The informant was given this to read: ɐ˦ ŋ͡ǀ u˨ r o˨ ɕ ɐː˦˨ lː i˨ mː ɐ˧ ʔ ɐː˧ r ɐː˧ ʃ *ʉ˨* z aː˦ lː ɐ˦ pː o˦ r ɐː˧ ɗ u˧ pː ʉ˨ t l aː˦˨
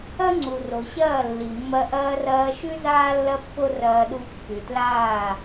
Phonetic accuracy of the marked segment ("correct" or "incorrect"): incorrect